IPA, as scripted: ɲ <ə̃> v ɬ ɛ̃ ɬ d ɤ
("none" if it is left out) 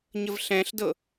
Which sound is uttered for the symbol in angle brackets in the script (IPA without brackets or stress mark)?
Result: ə